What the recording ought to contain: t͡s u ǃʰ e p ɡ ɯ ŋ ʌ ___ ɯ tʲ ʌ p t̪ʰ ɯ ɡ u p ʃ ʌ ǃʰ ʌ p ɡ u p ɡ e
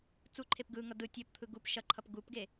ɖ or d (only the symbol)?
d